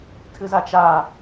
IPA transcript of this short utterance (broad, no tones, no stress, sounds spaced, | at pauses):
tʰ ɨ z a t͡ʃ a